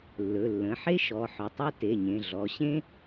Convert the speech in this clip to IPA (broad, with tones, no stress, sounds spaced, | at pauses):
lː ɵ˩˧˩ lː ə̃˩˧˩ ħ e˥ ʃ ɔ˩˧˩ ħ ɵ˩˧˩ tˤ ɛ˥ t e˩˧˩ ɲ ẽ˩˧˩ ɮ ɔ˩˧˩ ɕ ẽ˥